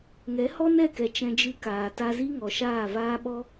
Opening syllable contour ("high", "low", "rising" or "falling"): rising